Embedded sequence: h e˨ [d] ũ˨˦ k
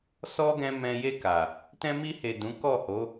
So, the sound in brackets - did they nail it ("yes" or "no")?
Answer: yes